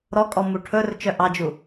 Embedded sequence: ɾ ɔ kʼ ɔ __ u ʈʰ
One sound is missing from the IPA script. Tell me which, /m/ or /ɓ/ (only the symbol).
m